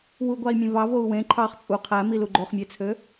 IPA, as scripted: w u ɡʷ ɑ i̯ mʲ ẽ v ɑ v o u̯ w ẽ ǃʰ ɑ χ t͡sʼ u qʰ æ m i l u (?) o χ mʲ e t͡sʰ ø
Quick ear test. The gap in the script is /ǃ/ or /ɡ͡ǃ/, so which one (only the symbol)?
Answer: ɡ͡ǃ